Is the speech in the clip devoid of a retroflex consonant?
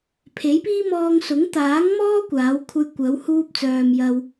yes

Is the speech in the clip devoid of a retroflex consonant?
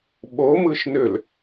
yes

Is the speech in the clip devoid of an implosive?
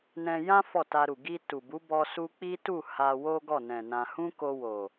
yes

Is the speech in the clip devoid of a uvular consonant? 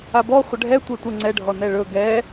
no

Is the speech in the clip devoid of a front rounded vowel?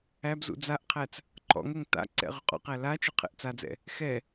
yes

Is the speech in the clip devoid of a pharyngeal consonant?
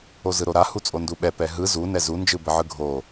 no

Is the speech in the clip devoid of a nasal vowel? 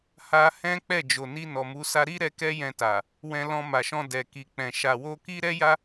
no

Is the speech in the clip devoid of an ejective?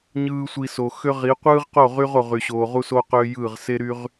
yes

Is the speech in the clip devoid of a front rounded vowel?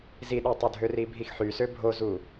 no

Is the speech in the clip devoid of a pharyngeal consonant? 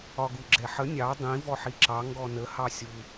no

